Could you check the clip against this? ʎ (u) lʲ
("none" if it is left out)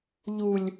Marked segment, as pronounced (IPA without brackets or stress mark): u